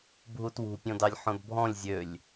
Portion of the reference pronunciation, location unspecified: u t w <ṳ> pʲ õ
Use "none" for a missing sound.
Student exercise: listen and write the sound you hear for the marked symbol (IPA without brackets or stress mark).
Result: ṳ